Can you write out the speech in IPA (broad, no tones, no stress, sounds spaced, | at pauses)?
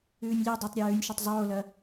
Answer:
ʉː nʲ lʲ u dˤ e tˤ ɾʲ ɐ j ʉː nʲ ʃ ɵ tˤ zˤ oː l ɐ